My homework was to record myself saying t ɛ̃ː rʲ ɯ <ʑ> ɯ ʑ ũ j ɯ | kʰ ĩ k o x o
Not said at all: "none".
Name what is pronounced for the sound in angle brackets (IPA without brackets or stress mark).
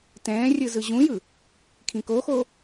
z